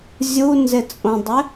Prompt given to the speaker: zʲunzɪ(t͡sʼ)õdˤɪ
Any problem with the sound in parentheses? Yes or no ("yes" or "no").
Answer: no